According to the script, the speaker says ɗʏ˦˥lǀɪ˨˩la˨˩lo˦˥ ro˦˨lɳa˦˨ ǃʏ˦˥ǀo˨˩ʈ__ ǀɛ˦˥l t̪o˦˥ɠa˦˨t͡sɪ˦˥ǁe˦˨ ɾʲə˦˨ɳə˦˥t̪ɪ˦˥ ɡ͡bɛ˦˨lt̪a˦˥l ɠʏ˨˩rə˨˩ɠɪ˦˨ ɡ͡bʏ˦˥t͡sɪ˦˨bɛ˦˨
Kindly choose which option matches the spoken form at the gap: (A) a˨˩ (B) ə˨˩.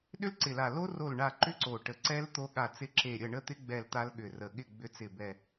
B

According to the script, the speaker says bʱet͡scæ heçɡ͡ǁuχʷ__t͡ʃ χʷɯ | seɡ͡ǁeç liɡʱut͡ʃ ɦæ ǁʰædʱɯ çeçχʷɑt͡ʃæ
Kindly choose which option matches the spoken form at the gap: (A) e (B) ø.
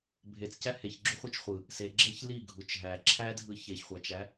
A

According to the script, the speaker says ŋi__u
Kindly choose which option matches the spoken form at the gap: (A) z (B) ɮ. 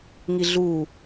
B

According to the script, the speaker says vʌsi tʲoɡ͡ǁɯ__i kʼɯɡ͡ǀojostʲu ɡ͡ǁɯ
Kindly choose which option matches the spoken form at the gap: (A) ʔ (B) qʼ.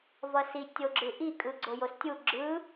A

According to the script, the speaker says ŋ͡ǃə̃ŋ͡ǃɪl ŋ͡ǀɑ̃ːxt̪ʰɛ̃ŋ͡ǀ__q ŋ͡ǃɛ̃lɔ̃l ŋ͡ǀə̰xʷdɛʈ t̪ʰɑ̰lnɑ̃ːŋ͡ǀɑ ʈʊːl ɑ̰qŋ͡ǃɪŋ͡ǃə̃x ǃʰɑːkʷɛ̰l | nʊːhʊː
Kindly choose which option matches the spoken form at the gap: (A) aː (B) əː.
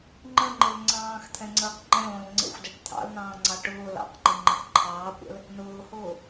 B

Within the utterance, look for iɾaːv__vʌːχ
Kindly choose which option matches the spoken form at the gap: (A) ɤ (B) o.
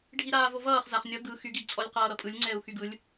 B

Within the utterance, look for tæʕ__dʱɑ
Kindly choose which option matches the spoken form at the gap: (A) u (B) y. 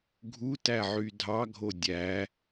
B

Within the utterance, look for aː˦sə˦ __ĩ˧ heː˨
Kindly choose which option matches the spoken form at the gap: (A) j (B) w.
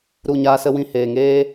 B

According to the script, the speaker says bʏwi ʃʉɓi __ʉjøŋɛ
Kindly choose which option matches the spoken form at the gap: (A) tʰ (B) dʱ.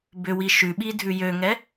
B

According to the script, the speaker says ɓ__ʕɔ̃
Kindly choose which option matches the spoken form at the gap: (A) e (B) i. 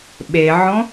A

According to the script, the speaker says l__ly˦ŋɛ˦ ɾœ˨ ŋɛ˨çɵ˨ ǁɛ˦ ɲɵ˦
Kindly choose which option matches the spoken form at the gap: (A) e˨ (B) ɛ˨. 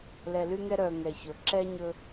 B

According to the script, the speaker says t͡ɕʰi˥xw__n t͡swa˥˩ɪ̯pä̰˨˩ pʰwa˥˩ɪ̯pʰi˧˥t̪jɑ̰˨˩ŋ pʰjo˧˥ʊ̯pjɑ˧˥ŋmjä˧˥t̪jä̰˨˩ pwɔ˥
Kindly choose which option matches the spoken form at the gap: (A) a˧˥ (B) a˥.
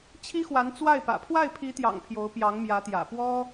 A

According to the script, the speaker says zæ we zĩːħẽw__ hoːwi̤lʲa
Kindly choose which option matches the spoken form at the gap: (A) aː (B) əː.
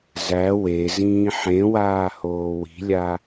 A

